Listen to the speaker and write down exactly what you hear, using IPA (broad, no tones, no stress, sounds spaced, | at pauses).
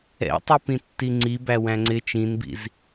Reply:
ɛ̰ tˤ i p ĩ tː i ŋ͡ǀ i b æ w æ̃ ŋ͡ǀ ɪ t͡ʃ ĩ n b ḭ z